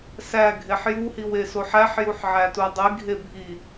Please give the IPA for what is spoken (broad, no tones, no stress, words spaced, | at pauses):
sæ ɡʱeħjuhiw esoħæħjuħ ʕætudˤiɡʱe bʱi